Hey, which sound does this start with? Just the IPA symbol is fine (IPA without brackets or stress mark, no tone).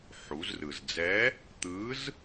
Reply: ħ